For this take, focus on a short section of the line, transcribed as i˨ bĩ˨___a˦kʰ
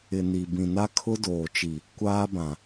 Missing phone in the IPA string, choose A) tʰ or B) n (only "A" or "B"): B